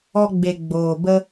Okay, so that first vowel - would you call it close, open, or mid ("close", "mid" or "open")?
mid